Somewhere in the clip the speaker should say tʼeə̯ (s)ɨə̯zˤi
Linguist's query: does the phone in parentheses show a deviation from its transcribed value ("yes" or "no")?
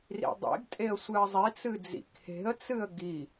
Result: yes